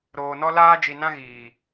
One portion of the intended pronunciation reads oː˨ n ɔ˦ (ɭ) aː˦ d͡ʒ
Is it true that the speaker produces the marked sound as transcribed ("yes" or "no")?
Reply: no